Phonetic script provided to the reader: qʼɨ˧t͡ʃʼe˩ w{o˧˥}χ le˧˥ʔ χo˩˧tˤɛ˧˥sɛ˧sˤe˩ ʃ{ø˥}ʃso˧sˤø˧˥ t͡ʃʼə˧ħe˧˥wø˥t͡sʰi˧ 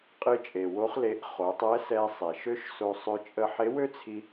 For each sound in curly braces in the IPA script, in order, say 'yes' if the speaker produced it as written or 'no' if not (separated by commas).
yes, yes